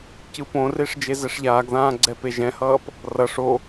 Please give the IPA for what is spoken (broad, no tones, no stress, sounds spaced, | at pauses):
c ɯ p õ r e ʂ d͡ʒ e z ɛ ʂ ʎ aː ɡ ð ãː ɡ͡ǀ ɛ p e ʒ ɛ̃ h ʌː p | r ʌ ʂ o